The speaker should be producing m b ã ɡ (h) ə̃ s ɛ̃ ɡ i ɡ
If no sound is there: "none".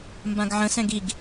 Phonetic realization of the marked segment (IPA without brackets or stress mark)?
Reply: ʕ